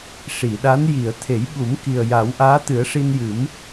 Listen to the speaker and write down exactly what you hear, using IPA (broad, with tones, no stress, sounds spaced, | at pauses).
ʂ i˨˩˨ ɗ a˧˥ n j i˨˩˨ ə̯ t̪ʰ e˨˩˦ j ɓ u˨˩˦ m k i˨˩ ə̯ j a˨˩˦ w ʔ aː˧˥ t̪ ɨ˨˩˦ ə̯ ʂ i˧ n j ɨ˨˩˦ m